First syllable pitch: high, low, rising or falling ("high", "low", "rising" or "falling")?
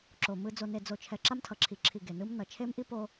low